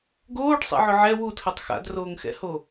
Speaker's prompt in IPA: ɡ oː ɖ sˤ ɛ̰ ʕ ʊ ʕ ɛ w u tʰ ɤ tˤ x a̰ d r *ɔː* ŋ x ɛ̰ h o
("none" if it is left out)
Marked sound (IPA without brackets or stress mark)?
oː